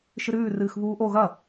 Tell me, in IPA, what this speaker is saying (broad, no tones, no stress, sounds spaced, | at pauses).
ʃ ɨ ɾ ʉː r ɨː x β uː ʔ o ɣ ɐ